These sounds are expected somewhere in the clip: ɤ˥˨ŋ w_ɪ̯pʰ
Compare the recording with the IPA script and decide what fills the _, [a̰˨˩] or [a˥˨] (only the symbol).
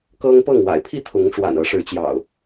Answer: a̰˨˩